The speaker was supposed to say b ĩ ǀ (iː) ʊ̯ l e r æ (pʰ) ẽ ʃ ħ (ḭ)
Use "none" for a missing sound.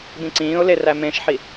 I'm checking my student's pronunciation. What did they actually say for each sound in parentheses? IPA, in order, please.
ĩː, m, i

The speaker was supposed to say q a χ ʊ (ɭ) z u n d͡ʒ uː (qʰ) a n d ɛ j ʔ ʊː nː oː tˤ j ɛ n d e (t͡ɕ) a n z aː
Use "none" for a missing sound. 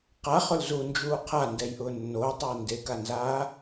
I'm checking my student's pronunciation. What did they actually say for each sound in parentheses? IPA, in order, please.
l, qʰ, k

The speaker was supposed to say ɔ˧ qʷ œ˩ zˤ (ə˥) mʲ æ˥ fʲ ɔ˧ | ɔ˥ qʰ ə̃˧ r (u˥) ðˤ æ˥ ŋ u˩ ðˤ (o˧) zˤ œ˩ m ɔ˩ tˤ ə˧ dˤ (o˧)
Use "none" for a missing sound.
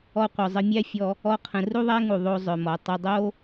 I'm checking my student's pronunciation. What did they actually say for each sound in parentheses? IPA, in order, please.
ə˧, u˥, o˧, o˥

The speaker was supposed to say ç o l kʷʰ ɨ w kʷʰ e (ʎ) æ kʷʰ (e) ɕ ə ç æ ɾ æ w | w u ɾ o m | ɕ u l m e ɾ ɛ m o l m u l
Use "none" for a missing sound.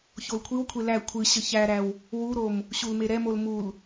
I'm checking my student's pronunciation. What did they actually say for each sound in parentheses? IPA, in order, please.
l, ɨ

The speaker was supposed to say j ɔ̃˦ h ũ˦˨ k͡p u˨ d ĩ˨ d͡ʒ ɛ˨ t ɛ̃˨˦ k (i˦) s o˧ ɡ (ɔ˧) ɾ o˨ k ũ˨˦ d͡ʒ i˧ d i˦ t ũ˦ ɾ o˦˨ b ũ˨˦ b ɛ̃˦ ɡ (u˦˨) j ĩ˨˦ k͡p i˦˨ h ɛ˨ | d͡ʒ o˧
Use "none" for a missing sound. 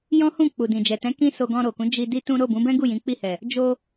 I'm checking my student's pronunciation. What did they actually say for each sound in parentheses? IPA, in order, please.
ĩ˦, ɔ̃˧, u˦˨

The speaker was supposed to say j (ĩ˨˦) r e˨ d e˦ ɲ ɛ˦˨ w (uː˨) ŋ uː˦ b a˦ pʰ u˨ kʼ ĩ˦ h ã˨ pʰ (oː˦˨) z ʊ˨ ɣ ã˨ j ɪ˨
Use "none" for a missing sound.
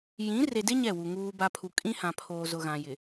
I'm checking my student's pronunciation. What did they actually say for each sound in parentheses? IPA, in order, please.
ĩ˨˦, u˨, oː˨

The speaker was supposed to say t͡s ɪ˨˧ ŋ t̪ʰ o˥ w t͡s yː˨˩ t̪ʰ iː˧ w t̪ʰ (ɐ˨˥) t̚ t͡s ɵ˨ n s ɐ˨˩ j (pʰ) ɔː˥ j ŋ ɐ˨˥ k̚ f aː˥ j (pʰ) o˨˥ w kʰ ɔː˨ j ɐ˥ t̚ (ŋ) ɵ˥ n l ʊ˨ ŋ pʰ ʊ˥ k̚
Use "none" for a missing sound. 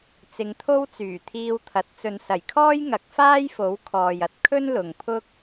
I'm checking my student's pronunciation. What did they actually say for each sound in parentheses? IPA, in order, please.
ɐ˨˥, kʰ, f, kʰ

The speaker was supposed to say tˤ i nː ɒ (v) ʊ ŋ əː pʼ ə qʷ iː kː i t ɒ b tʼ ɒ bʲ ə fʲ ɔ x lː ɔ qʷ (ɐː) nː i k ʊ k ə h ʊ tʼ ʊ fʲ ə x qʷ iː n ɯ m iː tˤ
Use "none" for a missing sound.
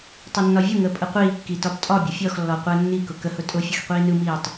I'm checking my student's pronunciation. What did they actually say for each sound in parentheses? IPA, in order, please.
vʲ, əː

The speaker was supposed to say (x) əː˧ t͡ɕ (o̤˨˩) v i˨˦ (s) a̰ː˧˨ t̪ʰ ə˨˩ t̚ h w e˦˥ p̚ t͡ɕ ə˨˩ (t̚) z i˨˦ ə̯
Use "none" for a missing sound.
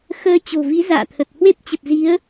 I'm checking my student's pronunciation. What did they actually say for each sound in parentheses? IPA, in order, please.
x, o̤˨˩, z, p̚

